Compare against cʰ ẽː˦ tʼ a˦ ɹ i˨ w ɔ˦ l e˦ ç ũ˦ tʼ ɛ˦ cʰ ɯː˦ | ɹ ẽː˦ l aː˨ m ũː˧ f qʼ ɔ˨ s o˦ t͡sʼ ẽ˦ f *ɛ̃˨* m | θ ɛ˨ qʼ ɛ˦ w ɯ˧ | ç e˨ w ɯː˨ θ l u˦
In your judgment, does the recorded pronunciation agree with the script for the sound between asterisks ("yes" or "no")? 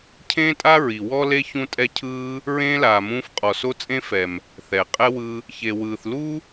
no